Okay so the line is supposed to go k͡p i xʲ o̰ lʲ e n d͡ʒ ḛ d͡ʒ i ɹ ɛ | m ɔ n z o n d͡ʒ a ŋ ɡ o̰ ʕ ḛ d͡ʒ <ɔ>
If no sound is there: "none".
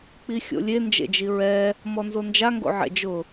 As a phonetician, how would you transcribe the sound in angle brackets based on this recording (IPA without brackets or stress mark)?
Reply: ʊ